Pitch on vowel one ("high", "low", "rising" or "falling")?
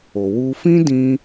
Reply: low